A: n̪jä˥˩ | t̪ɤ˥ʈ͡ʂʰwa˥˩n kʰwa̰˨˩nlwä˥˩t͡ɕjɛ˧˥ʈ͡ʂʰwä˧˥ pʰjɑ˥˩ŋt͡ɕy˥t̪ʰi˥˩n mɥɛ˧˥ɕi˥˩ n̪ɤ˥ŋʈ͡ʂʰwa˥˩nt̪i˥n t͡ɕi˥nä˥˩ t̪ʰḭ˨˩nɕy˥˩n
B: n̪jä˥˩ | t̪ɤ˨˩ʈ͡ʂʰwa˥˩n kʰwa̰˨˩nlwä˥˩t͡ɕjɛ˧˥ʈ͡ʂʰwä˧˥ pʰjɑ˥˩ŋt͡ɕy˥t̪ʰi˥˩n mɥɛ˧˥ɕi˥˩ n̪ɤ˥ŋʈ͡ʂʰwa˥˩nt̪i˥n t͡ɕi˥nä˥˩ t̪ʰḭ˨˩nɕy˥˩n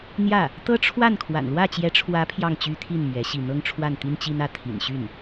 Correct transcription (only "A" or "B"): A